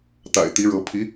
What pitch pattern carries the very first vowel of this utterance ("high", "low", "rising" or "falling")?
low